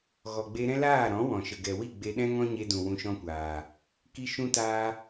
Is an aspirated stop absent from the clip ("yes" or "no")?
yes